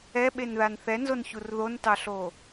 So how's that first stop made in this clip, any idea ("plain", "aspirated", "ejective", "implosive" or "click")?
implosive